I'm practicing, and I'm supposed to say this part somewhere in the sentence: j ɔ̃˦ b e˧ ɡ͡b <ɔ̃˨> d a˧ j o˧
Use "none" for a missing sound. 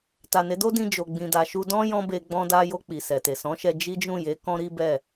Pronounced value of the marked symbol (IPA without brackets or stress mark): ɔ̃˧